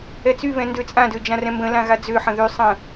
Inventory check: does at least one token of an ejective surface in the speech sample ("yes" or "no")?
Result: yes